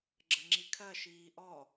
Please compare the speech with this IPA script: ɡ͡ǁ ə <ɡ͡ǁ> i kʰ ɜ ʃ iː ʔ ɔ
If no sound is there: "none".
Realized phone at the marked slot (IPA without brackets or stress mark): ŋ͡ǁ